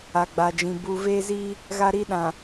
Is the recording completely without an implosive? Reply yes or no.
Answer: no